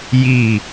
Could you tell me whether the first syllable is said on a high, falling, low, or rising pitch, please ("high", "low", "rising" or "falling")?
falling